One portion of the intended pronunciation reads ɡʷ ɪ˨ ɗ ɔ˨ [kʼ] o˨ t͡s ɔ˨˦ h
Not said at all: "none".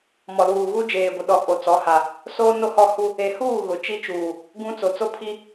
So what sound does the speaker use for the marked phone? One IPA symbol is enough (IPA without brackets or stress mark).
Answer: kʼ